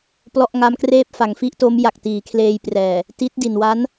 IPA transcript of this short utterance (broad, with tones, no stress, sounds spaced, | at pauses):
p l ɔ˥˩ ʔ ŋ a˦˥ m k r eː˥˩ p̚ f a˩˦ ŋ f i˦˥ ʔ t o˦˥ m j a˨˩ k̚ t iː˩˦ kʰ l eː˧ j p r ɛː˨˩ | t i˦˥ t̚ d i˨˩ n w a˦˥ n